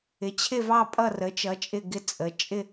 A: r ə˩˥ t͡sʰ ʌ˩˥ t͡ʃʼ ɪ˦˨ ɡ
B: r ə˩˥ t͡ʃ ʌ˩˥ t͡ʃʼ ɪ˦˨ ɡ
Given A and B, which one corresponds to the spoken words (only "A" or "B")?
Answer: B